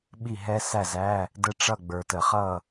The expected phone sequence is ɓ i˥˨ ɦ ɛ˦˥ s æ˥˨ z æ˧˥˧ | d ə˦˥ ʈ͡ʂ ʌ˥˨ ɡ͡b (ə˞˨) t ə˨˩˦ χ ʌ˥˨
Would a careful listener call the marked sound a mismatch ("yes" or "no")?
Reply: no